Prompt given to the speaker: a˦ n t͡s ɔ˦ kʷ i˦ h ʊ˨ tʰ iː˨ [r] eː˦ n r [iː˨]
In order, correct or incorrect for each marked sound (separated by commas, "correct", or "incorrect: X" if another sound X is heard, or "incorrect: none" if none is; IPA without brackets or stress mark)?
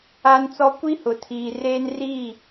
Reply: correct, incorrect: iː˦˨